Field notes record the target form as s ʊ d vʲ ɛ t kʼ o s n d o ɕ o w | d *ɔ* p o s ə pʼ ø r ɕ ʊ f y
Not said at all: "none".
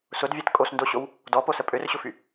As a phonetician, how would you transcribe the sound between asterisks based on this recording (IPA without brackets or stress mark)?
ɔ